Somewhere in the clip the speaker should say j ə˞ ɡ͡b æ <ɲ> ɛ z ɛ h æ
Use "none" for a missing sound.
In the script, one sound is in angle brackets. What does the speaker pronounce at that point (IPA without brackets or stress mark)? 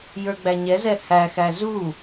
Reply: ɲ